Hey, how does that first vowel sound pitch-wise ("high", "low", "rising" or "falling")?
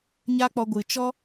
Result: high